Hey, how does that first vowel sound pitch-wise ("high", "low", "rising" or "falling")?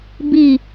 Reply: falling